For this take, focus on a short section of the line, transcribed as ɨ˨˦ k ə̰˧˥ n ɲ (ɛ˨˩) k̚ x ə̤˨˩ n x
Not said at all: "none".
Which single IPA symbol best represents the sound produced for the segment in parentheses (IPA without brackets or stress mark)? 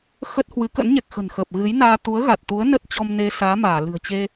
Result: ɛ˨˩